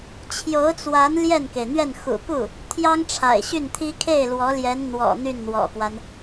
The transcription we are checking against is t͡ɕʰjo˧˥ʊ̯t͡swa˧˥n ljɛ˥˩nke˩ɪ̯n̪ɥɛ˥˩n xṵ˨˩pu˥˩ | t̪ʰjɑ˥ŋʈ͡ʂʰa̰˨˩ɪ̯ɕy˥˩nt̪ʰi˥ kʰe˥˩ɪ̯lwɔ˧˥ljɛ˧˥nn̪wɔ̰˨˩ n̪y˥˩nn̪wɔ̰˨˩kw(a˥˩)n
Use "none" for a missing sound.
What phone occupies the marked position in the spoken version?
a˦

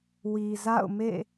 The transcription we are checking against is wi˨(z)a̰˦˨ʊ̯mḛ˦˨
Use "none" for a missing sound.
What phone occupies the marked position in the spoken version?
z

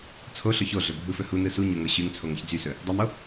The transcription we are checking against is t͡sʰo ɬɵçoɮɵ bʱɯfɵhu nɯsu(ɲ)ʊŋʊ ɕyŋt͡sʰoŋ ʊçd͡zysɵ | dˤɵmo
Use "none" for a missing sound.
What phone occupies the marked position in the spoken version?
ɲ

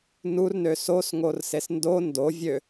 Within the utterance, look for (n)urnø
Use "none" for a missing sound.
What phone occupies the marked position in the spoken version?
n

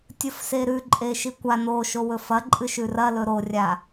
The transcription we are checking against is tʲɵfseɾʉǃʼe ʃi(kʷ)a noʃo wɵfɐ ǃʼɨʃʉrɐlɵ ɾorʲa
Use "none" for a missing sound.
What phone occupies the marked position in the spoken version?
kʷ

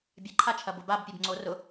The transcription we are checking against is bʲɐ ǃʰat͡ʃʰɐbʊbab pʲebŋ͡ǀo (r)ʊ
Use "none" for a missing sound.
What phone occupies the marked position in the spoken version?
r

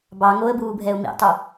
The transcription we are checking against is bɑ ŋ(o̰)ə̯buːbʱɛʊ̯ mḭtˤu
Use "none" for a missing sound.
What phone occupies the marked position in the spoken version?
o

